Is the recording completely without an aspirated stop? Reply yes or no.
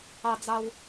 yes